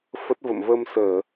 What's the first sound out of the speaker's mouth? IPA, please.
f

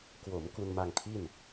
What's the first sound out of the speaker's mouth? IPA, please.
k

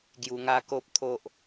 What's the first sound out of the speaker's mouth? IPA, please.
ɡ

